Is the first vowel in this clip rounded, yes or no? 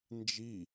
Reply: no